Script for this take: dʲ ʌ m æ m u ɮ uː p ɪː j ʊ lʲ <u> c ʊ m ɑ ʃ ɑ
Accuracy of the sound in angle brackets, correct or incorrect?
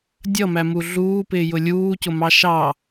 incorrect